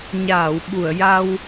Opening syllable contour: low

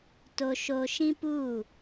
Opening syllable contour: high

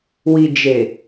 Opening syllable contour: low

